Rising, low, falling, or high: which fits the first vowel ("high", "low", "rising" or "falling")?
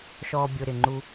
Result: low